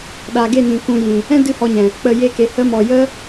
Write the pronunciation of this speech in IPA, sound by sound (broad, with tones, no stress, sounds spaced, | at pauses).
ɗ a˨ ɡ e˦˨ n ĩ˨ k ũ˧ j ĩ˨ | ɛ̃˦ d ɨ˧ h ɔ˧ ɲ ɛ̃˨ | k͡p ə˨ j e˧ k e˨ h ə˦ m ɔ˧ j ə˦